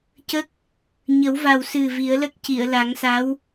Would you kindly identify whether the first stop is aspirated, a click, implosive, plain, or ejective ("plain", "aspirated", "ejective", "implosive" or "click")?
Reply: plain